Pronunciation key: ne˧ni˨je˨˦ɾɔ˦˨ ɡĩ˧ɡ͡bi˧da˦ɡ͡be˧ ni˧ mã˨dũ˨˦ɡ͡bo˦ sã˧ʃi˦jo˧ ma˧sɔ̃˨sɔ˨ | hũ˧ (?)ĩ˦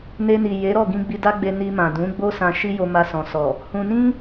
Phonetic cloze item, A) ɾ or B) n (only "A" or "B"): B